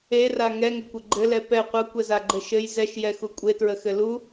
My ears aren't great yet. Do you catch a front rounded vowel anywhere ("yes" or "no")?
no